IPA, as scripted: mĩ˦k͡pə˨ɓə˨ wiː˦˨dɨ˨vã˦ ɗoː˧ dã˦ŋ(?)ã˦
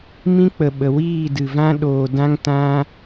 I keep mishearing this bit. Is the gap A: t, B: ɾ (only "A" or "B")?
A